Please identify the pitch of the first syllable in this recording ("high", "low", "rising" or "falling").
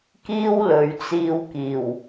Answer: high